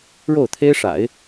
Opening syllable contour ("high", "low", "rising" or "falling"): falling